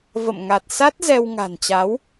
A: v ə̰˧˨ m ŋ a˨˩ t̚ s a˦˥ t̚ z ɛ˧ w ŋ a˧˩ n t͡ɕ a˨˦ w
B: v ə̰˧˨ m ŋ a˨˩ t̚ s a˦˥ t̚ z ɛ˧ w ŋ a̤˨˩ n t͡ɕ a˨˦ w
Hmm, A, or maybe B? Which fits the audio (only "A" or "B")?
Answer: B